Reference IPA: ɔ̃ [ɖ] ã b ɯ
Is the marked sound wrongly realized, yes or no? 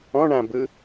yes